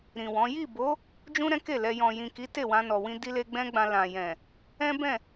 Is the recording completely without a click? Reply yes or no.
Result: yes